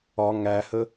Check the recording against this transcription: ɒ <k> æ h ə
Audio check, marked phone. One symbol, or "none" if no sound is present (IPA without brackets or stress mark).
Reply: ŋ